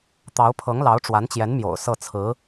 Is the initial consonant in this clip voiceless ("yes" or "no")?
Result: yes